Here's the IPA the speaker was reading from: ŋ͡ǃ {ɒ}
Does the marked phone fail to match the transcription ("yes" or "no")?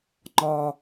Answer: no